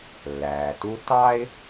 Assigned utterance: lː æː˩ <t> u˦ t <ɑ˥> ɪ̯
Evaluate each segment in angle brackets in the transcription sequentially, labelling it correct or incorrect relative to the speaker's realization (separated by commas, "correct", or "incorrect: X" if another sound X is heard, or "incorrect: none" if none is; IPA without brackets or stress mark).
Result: correct, correct